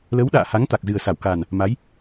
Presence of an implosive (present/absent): present